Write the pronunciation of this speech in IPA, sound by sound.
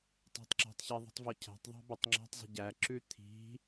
tˤ ɛ̤ tˤ ǁ ɛ̤ tˤ ç ɛ ðˤ i̤ tˤ v ɔ cʰ æ̤ tˤ ðˤ æ̤ b ɛ tˤ ŋ͡ǁ æ̤ tˤ zˤ i̤ ɟ æ ǁ ʉ t̪ʰ i̤

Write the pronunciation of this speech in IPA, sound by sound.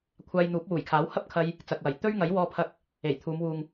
kʷʰ aː˧ j n̪ uː˨˥ p̚ w uː˨˩ j kʰ aː˨˥ w h ɐ˥ p̚ kʰ ɐ˧ j | t͡s ɐ˨ k̚ w ɐ˨˩ j t̪ ɵ˥ ɥ ŋ ɐ˨˥ j w ɔː˧ pʰ ɐ˧ k̚ | e˨˩ j t̪ʰ uː˨˧ m w uː˨ ŋ

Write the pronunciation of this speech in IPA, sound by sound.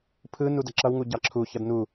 pʰ ɯ n u d ʌ ǁ ʌ w ŋ u ɟ ɑ ǁʰ u ç ʌ d n u

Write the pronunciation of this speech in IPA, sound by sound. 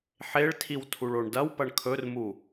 ħ e ɭ tʰ i w tʰ u ɭ o ɳ d ɐ w p ɐ ɳ kʰ ɵ r m u

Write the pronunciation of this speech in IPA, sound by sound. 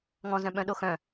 ŋ ɔ̃ z œ̃ ɓ œ̃ ɗ o x œ̃

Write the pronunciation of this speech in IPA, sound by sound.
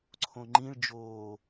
ǀʰ õ ŋ͡ǃ ĩ ɭ d͡ʒ oː

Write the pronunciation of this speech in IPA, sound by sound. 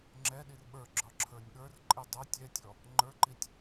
ŋ͡ǁ ɛ ɗ i r ɓ ə˞ ɡ͡ǁ ɒ ǁʰ ə˞ nʲ ɠ ə˞ r ǃʼ i dˤ ɛ tʲ ɛ tʲ ɔ | ŋ͡ǃ ə˞ ǃ i tʲ

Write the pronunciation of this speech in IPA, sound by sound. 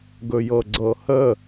ɡ ɵ j ɤ ɡ͡ǀ ɤ h ə

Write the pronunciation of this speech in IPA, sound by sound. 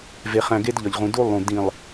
v e˨ χ æ̃˨ ɡ e˦ d ʎ ɒ˨ ʎ ʁ ũ˨ d u˦ lˠ ũ˨ d ĩ˨ lˠ

